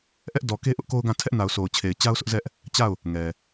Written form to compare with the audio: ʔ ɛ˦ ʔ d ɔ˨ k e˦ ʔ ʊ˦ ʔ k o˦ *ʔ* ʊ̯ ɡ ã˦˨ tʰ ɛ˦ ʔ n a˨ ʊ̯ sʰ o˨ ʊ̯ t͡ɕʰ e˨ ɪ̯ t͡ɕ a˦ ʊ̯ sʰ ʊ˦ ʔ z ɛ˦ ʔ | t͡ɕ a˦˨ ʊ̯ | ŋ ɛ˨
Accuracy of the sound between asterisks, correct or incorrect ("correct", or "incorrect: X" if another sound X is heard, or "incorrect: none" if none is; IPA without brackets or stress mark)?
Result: incorrect: none